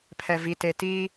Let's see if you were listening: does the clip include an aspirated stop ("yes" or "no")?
yes